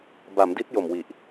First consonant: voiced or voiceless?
voiced